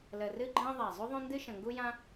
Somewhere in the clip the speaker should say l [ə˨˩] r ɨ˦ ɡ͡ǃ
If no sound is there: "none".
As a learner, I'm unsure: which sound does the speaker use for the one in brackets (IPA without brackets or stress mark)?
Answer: ə˨˩